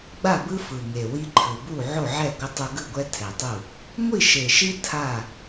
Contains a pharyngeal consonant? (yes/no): yes